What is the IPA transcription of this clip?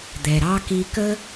d̪ ɛ˩ ɾ ɑ˥ k i˧ k ə˥

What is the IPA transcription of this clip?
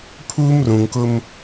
pʰ uː˦ m r ũ˨ ŋ k ʊ˦ m

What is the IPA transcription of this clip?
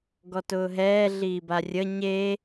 ɡ ɔ t ʊː ɦ ɛː ɮ iː b a rʲ ə ɲ e

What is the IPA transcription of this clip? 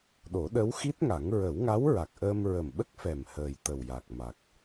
ɗ o˨˩˦ ɗ ə˧˥ w x i˦˥ t̚ ŋ a˨˩˦ ŋ ɹ ə˨˩˦ w ŋ a˧˥ w ɹ a˨˩ k̚ ʔ əː˧ m ɹ ə˨˩ m ɓ ə˦˥ k̚ f ɛ˨˩ m h əː˨˩ j t̪ ə˨˩ w j a˨˩ k̚ m a˨˩ k̚

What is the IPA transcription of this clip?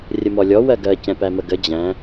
rʲ ə m ɔ lʲ ɔ w ɜ ɡ ɜ c ɛ̃ p æ m ə ɡ ə d͡ʑ æ̃

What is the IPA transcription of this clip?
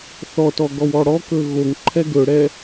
θ ɔ t ɔ ɡ ɔ w ɔ ɽ ɔ k ɵ ɣ o ŋ ǃʰ ɛ ɡ ɵ ɽ ɛ

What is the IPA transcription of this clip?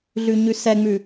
ɮ ʉ ɲ ʉ s ɛ ŋ͡m ʉ

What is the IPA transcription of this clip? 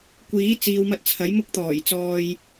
kʷ iː˨˥ t͡s iː˨˧ w m ɐ˧ t̚ t͡sʰ ɐ˨˥ j m ʊ˥ k̚ t̪ ɔː˨˩ j t͡s ɔː˨ j

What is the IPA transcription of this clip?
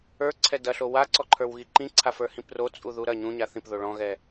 ə˞ ǀʰ ɛ d ɐ ɬ o w a ǀ ɔ ǃʰ ə˞ w ɣ i ǃ ĩ ǀʰ a f ə˞ h ĩ p r o t͡sʼ u ð u ɾ ɐ ɲ ũ ɲ a θ ĩ p ð o ɭ ɔ̃ ɣ ɛ

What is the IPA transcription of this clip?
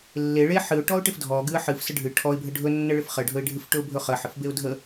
lː e ɭ e ħ ɨ ʊ̯ ʈ ɔ ʊ̯ ʈ ɪ f dʱ ɔ ɡ ɨ ə̯ ħ ɨ f s ə ɖʱ ɨ ʈʰ ɔ ɪ̯ bʱ ə ɖʱ ɵ nː ə ɭ ɪ f χ ə ɖʱ ɵ ɪ̯ ɖʱ ɨ f ʈ ɵ ʊ̯ bʱ ɵ χ ə ħ ɪ f b e ʊ̯ dʱ ə

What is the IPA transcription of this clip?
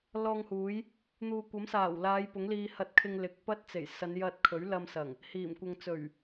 l ɔː˧ ŋ h uː˨˥ j | n̪ uː˨ kʷ ɐ˨˥ m s aː˨˩ w l aː˨˧ j p ʊ˨˥ ŋ l iː˧ h ɐ˧ t̚ kʰ ɪ˧ ŋ l ɪ˨˥ k̚ p ɐ˥ t̚ t͡s e˨˩ j s ɐ˨˧ n j ɐ˧ t̚ kʰ ɵ˨˥ ɥ l ɐ˧ m s ɐ˨˩ ŋ | h iː˨˩ m kʷ ɐ˧ ŋ t͡s ɵ˨˩ ɥ

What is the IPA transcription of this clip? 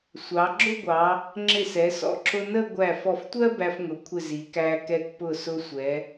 sʷ ɑ˩˧ ɡ͡ǁ ʊ˥˧ ɡʷ ɑ˩˧ | ŋ͡ǁ ɪ˧˩ s ɛ˩˧ s ɔ̰˧˩ ǁ ʊ˧ n ə˥˧ ɡʷ æ˧˩ f ɔ˧˩ f tʷ ɜ˥ b æ˧ f ŋ ʊ˩˧ kʷʰ ɪ˧˩ z i˩˧ k æ˧ k ɛ˧ k p ʊ˧˩ s ʊ˧ sʷ ɛ˩˧

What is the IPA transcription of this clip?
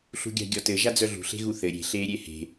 ɬ ṳ ɡʲ a̤ ɡʲ ɔ t ɘ ʒ a d͡z œ ɮ ṳ ɬ e̤ ɣ u θ ɘ ɾʲ e̤ ɬ eː ɾʲ e h e̤

